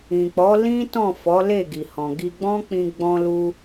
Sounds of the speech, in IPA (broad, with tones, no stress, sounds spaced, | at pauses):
ĩ˨ k͡p ɔ˨˦ l ĩ˦ t ɔ̃˦˨ f ɔ˨˦ l e˦˨ ɡ i˨ h ɔ̃˨ ɡ i˧ ɡ͡b ɔ̃˦ k͡p ĩ˧ ɡ͡b ɔ̃˧ l u˧